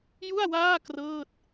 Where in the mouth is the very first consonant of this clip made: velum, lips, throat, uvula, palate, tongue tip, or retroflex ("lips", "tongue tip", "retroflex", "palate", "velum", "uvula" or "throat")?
palate